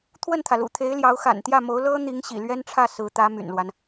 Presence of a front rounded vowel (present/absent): present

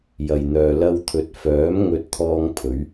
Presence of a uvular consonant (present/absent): absent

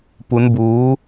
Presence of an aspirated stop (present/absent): absent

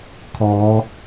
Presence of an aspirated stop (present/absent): present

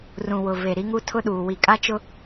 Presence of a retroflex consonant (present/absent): absent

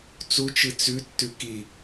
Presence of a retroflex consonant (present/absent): absent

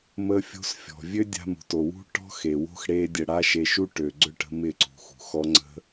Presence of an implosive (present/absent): absent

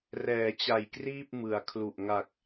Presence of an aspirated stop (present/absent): present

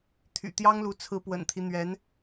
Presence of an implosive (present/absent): absent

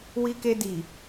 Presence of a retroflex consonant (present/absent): absent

